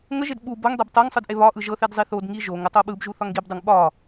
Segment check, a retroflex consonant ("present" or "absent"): absent